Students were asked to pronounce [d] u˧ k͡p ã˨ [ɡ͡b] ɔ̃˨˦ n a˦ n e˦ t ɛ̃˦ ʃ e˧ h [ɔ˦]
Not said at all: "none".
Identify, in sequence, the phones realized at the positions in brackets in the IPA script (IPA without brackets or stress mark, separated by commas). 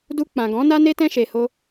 d, ɡ, o˦